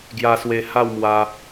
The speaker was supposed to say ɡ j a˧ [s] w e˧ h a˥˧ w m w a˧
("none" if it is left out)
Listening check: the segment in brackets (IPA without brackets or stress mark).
s